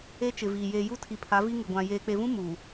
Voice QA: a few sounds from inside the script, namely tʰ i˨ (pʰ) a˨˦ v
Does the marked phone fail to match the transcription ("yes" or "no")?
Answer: no